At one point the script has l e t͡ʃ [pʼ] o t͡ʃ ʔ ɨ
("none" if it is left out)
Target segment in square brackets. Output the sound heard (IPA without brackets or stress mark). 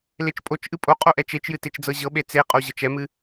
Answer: pʼ